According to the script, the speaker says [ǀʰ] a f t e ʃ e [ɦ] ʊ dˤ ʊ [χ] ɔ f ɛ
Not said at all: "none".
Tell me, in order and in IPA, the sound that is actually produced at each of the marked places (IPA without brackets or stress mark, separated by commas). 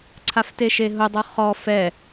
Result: ǀʰ, ɦ, χ